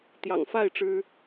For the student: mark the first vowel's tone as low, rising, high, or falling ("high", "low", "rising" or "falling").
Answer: low